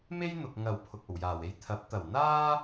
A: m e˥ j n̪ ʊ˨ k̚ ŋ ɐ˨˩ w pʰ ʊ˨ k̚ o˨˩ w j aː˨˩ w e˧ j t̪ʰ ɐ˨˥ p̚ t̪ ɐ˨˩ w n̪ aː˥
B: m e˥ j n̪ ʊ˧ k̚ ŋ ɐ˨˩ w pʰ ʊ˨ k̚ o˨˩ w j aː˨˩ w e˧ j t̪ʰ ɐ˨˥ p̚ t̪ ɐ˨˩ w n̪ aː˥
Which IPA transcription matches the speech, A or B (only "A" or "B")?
A